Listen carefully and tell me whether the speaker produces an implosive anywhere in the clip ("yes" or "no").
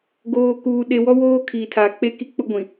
yes